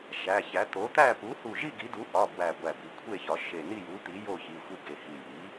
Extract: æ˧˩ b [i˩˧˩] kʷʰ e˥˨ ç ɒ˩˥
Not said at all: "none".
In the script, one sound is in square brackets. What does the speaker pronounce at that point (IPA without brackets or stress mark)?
i˩˧˩